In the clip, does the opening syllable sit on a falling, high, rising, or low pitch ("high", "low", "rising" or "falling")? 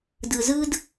low